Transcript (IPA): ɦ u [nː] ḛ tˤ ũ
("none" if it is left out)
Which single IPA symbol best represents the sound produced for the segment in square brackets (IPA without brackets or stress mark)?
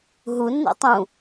nː